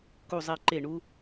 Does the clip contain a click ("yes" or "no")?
yes